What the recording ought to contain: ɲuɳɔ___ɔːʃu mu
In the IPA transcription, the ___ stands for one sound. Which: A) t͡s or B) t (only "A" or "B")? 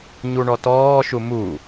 B